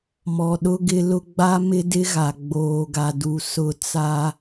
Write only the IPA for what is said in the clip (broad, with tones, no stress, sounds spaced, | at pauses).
m ɔ˨ ɗ ʊ˦ ɡ ɪ˦ l ʊ˦ ɡ͡b a˦ m ɪ˦ d ɪ˦ ɣ a˨ ɡ͡b oː˨ ɡ a˨ d u˨ s ʊ˦˨ t͡s a˦